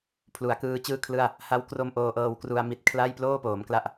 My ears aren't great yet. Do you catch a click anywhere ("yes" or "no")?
no